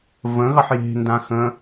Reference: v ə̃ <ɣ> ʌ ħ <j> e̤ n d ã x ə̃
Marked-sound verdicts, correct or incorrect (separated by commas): correct, correct